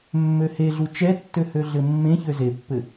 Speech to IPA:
mː ø h e ɮ u t͡ʃ ɛ tː ø h ø ɮ ɘ mː ẽ ç ø z e pː ɘ

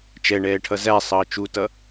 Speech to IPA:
t͡ʃ ɛ ɳ ɛː ʈʰ ʌ z æ sˤ ʌː t͡ʃ u t ʌ

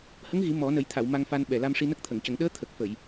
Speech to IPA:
h ə˧˥ ŋ ɣ i˨˩˦ m ɔ˨˩˦ n ə˨˩˦ j t̪ʰ a˨˩˨ w m a˧ ŋ f a˧ n ɓ ɛ˨˩ l a˧ m ʂ i˧ n ə˦˥ k̚ t̪ʰ ə˨˩˨ ŋ c ə˨˩˦ ŋ ɗ əː˧˥ t̪ʰ ə˨˩ k̚ f ə˨˩˨ j

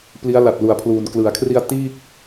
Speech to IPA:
p l i˦˥ a̯ l a˨˩ t̚ l u˨˩ a̯ pʰ l uː˨˩ n k l ɯ˩˦ a̯ kʰ r i˥˩ a̯ t iː˥˩ k̚

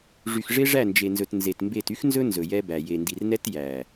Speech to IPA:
ʐ y˨ x ʐ e˦ ʐ æ˦˨ n d͡ʒ e˨ n z ɵ˨ t n z e˨ t m b e˦˨ t y˦ x n z ɵ˦ n z ɵ˨ j ɛ˦ b æ˨ j e˨ n d i˨ r n ɛ˦ t j æ˨

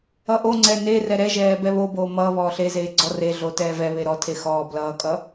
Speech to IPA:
ʌ ʔ o ŋ͡ǀ ɛ n e r ɛ ɾ ɛ ʒ ɛː b ɛ β o b oː m ʌ β ɔː ɬ e z eː ɡ͡ǀ ɔ r e ɮ o t ɛː v ɛ β e ɾ ɔ tʰ e x ɔː b l ʌː kʼ ʌ

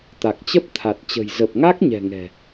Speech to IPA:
t̪ a˨˩ k̚ t͡ɕ ə˦˥ p̚ t̪ʰ a˨˩ t̚ t͡ɕ ə̤˨˩ j z ə˨˩ p̚ ŋ a˦˥ k̚ ɲ ɛ̤˨˩ ŋ ɛ̤˨˩

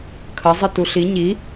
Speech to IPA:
kʰ ɐ zˤ i t u ɬ i ɲ i

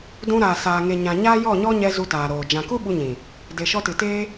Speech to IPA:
d ũ˧ ɾ aː˨ s aː˨ ŋ e˨ ɲ ã˨ ɲ aː˦ j ɔ˦˨ ɲ ɔ˦ ɲ ɛ˧ z u˧ t aː˨ ɾ oː˨ d͡ʒ ã˨ k u˦ ɓ u˧ ɲ ĩ˨ | d e˨ ʃ ɔ˧ t ɨ˨ t eː˦

